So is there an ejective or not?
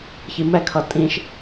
yes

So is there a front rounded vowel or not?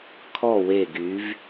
yes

